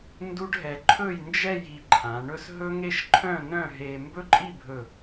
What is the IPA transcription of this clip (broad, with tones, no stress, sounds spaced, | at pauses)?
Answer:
n d u˥ ɖ ɦ ɛ˧ ǃʰ ɵ˥˧ j n d͡ʒ ɛ˥˧ j i˧ ǃʰ ã˩˧ ɳ ɵ˥ s ɦ ɵ˥ ŋ e˥˧ ʃ ǃʰ œ̃˥˧ n œ̃˥˧ ɦ e˧ m b ɵ˥ ǃʼ i˥˧ bʱ ɵ˧˩